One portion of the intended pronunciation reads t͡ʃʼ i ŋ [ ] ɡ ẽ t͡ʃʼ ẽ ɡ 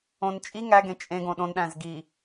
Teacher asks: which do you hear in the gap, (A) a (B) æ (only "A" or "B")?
B